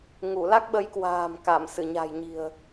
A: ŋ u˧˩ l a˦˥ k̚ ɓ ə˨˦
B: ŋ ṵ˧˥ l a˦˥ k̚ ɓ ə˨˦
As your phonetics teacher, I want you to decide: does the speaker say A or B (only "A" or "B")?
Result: A